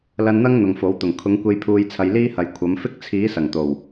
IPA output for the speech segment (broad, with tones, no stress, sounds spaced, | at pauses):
l ɐ˧ n n̪ ɐ˥ ŋ n̪ ʊ˨ ŋ f o˨˥ w t̪ ʊ˨˩ ŋ kʰ ʊ˨˥ ŋ kʷ e˧ j pʰ uː˨˧ j t͡sʰ ɐ˨˧ j l iː˥ h ɐ˨ j kʷʰ ɐ˨˥ m f ɪ˥ k̚ t͡sʰ iː˨˥ s ɐ˨˩ ŋ t̪ o˨˩ w